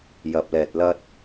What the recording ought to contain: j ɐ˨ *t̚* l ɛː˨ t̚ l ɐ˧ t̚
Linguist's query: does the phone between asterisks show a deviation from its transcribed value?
yes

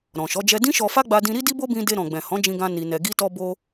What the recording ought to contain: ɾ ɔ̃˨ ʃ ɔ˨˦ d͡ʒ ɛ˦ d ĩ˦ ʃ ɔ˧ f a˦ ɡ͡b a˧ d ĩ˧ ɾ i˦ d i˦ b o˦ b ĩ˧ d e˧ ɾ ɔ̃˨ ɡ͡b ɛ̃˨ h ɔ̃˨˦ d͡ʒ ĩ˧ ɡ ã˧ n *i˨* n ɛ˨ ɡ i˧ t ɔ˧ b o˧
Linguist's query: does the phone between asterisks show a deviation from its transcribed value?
no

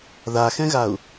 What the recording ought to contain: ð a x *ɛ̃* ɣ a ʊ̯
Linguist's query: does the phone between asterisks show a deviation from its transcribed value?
no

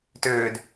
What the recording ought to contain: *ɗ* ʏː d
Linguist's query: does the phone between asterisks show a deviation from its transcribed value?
yes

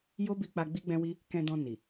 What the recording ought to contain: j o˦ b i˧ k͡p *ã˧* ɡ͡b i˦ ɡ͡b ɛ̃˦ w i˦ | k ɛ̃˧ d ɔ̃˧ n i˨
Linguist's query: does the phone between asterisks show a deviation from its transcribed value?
yes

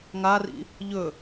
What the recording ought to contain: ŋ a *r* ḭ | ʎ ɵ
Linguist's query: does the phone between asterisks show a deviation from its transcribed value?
no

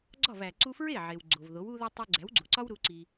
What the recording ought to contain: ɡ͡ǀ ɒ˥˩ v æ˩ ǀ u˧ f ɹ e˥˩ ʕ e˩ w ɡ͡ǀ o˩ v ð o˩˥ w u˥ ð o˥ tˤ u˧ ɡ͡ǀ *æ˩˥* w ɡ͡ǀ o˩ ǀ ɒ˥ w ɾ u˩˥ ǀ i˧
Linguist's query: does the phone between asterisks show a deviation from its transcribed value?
no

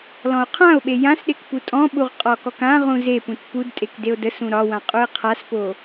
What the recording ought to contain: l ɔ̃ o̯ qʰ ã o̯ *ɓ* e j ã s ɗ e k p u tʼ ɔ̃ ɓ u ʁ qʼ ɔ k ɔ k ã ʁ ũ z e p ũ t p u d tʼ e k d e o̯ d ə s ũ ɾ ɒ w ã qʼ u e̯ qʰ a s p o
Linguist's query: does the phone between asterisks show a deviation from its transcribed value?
no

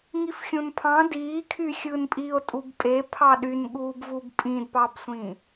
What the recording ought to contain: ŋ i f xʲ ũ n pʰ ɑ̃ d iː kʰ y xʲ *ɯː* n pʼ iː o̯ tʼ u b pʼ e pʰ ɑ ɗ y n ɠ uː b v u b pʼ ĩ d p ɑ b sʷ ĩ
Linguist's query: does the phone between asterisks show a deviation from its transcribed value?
no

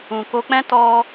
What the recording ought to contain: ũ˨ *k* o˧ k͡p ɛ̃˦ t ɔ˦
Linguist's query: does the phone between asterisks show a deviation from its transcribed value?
no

